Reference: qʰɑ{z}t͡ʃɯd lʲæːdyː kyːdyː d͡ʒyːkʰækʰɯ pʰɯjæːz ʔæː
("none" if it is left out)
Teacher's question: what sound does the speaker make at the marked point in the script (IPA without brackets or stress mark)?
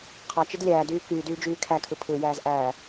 none